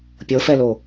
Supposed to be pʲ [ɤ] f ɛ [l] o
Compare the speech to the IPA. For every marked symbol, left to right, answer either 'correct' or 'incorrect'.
correct, correct

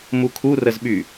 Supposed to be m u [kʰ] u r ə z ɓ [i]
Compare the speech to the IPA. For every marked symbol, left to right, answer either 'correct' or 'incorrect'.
correct, incorrect

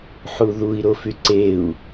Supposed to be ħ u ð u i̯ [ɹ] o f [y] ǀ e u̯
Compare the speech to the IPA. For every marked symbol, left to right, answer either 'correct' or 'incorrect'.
incorrect, correct

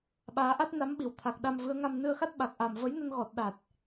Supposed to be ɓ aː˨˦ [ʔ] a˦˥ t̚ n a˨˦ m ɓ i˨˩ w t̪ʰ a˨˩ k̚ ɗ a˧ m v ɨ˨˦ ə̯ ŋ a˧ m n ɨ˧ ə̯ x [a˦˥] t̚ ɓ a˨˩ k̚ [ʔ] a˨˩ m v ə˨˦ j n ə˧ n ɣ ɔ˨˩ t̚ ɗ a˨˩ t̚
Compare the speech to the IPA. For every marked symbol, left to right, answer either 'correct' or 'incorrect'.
correct, correct, correct

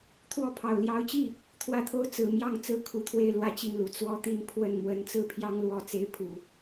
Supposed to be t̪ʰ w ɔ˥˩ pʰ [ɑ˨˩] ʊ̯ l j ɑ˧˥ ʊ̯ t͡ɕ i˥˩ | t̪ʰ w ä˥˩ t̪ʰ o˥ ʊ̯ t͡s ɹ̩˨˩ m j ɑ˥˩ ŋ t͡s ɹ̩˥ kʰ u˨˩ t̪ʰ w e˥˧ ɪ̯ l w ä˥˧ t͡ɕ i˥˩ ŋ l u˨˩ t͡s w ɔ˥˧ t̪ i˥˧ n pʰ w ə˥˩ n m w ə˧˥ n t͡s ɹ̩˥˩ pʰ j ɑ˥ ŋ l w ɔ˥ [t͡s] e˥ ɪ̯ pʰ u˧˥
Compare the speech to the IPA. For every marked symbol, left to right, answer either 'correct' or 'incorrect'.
correct, correct

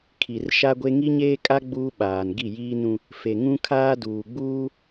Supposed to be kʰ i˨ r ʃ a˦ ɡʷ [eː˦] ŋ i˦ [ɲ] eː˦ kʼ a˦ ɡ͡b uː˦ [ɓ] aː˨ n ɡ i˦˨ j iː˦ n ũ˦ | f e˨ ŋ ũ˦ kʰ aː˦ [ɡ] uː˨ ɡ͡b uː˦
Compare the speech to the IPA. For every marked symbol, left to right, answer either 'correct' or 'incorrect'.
incorrect, correct, correct, incorrect

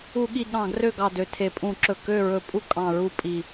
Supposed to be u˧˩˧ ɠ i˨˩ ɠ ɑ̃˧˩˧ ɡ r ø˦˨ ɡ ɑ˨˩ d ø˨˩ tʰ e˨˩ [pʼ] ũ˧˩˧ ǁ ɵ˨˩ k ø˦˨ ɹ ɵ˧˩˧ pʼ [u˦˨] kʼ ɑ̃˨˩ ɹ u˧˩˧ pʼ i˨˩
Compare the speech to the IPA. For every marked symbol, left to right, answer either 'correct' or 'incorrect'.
correct, correct

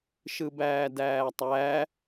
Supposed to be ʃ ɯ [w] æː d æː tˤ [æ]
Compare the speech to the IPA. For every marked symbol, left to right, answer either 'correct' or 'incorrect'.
incorrect, correct

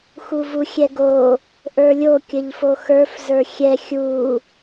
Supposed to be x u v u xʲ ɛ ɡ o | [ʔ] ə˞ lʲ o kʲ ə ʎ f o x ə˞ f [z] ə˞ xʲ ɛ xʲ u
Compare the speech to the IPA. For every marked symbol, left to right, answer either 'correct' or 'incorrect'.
correct, correct

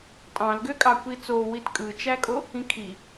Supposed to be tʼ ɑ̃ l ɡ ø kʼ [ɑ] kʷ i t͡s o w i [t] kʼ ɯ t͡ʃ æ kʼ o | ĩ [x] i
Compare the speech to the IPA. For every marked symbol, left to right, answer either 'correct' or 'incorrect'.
correct, correct, incorrect

